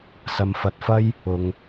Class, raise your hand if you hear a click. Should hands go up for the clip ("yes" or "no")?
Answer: no